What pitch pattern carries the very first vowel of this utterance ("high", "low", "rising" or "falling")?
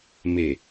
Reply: low